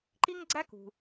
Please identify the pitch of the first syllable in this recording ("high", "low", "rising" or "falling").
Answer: high